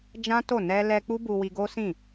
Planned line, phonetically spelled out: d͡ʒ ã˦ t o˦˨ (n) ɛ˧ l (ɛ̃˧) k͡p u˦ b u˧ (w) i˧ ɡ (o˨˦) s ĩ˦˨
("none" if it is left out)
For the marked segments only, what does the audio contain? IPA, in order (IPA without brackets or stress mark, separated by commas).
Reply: n, ɛ˧, w, o˦